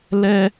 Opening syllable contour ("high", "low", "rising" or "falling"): high